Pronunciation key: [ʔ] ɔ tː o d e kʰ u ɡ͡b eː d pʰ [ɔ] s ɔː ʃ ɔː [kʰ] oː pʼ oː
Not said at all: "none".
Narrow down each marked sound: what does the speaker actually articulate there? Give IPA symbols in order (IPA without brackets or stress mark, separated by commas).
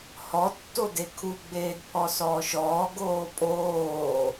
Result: h, ɔ, ɡ